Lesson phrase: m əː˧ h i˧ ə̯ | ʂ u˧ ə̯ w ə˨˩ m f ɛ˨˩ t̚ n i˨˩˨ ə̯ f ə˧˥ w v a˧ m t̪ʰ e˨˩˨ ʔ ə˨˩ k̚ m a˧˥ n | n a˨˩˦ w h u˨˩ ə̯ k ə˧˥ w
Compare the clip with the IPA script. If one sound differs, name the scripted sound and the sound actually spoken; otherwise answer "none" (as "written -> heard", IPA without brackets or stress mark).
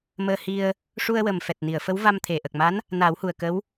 none